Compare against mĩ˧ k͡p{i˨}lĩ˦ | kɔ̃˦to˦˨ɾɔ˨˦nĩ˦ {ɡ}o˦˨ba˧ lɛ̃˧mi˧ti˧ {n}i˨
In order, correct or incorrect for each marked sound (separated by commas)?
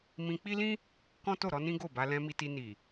incorrect, correct, correct